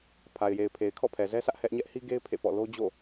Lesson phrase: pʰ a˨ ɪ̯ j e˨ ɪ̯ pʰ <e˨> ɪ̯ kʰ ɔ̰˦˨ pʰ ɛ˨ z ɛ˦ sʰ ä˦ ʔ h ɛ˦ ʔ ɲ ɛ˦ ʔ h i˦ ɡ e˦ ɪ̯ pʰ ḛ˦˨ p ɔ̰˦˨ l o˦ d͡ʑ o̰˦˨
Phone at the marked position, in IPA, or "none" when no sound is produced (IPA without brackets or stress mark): e˨